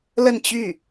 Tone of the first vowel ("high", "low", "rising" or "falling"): falling